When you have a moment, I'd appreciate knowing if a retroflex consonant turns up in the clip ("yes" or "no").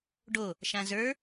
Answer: yes